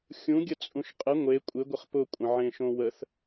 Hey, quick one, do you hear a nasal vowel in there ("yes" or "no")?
yes